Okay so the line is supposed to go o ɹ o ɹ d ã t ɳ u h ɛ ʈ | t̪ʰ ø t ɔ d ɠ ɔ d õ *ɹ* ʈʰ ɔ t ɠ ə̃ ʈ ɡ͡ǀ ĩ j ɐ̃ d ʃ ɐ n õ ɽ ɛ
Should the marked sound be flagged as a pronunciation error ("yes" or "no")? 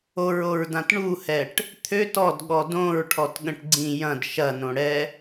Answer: no